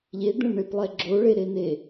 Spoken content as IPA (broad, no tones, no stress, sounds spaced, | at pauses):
ʎ e d̪ ẽ ɭ ɳ e p lˠ ɛ ɡ͡ǁ o ɭ e ɾ e n e